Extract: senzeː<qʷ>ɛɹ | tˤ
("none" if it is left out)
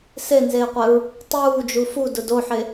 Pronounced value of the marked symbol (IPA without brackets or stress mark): qʷ